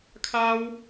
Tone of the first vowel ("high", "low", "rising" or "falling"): high